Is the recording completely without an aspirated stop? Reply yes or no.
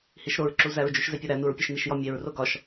yes